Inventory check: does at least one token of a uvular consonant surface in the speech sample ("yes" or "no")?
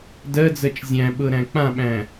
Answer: no